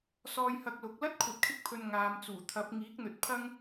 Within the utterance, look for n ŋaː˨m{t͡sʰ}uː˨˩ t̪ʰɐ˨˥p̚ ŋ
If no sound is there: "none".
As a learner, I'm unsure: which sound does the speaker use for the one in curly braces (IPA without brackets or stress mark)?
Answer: t͡s